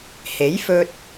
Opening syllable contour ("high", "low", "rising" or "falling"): rising